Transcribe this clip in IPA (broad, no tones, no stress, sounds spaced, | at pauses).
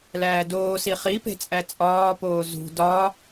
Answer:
l æː d oː s i χ i p e̤ t͡sʼ æ t͡sʼ ɒː p oː z ṳ d ɒ